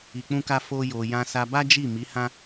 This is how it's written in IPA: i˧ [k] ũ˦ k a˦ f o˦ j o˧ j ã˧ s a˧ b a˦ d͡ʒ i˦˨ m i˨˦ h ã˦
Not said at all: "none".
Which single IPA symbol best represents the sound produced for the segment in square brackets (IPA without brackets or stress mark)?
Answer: k͡p